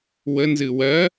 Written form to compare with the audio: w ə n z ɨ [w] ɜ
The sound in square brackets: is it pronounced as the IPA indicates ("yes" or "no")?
yes